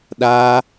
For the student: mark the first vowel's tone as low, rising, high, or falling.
high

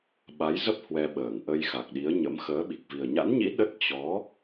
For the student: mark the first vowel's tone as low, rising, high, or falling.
rising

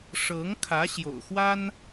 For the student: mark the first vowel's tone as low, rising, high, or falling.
rising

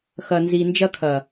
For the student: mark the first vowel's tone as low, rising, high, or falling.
low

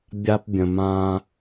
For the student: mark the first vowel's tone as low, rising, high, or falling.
high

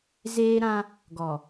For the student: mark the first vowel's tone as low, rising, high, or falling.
high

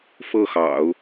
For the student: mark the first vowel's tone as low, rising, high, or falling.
falling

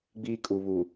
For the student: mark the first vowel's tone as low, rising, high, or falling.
high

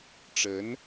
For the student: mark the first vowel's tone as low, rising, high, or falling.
rising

